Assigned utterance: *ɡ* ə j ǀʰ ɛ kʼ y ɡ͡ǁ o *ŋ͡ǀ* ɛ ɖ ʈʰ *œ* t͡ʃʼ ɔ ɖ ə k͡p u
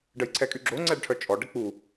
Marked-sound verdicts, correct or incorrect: incorrect, correct, correct

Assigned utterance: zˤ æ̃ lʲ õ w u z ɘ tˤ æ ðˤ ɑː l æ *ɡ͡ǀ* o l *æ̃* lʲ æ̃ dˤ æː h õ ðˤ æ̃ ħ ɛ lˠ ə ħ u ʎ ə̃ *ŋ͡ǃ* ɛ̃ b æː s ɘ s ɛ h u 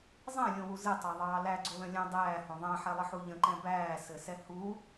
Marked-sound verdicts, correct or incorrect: correct, incorrect, incorrect

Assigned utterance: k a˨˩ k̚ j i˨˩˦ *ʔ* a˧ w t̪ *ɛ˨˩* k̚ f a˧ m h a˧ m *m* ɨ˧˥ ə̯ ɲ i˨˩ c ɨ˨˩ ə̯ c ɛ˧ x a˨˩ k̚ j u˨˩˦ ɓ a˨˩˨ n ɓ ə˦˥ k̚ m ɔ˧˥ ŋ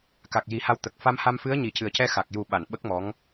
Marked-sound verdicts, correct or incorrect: incorrect, incorrect, incorrect

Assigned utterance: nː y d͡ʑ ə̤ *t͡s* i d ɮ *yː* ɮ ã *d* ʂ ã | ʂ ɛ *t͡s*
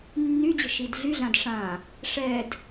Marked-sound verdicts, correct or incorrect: incorrect, incorrect, correct, incorrect

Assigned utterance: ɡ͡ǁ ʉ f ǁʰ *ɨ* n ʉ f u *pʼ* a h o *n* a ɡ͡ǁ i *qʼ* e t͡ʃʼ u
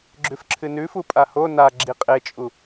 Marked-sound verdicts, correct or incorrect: correct, correct, correct, correct

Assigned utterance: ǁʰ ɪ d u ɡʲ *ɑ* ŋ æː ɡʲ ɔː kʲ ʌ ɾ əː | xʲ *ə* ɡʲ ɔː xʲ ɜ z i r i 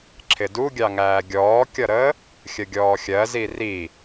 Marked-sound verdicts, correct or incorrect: correct, correct

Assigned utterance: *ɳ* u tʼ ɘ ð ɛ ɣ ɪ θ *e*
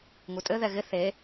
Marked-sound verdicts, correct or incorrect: incorrect, correct

